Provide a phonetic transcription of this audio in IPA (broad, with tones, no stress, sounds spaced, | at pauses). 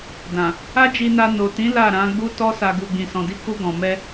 d ã˨ | a˦ d͡ʒ i˧ n a˧ n o˨ t ĩ˨˦ l a˦˨ ɾ ã˨˦ ɡ͡b u˦ t ɔ˦ s a˧ ɡ u˨ ɡ͡b ĩ˨ s ɔ̃˨ d i˧ k u˧ ɡ ɔ̃˨ m ɛ˧